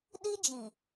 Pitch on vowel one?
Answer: high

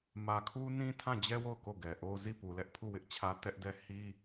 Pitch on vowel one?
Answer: low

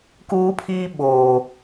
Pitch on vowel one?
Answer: high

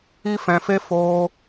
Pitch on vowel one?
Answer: high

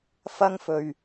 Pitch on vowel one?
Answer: high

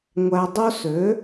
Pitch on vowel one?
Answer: low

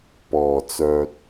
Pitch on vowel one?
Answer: low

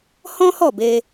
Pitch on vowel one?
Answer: high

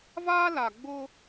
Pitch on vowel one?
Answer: high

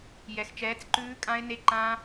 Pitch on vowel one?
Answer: low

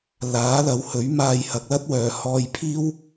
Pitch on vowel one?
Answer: rising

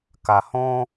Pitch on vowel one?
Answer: low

